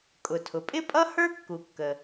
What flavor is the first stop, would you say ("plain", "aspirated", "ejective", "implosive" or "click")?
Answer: ejective